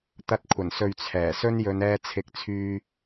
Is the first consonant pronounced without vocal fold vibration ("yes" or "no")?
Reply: yes